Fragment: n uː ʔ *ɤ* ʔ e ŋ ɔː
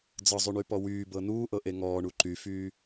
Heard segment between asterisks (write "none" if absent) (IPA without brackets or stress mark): ɤ